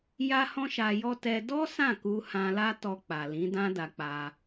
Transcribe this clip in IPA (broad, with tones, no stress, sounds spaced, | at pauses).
j a˦ h ɔ̃˦ ʃ a˧ j ɔ˦ t ɛ˧ d ɔ˦ s ã˦˨ k u˧ h ã˧ l a˦ t ɔ˧ k͡p a˨ l ĩ˨˦ d ã˦ d a˧ k͡p a˧